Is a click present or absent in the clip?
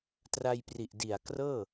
absent